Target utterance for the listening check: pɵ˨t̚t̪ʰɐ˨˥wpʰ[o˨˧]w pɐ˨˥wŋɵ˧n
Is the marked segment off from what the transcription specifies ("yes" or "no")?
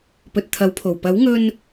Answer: yes